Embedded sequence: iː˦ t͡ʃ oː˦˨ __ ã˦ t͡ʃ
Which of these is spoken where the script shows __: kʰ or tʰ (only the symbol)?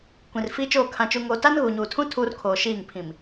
kʰ